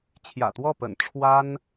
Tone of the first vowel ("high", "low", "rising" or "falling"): low